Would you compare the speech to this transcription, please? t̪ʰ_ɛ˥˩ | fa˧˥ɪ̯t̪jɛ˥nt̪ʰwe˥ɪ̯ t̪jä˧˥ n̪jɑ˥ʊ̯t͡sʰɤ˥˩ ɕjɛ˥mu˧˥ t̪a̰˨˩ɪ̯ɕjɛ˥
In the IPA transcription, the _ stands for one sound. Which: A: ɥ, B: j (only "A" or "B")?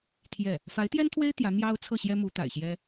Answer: B